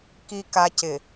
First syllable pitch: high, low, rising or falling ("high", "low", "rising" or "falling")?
low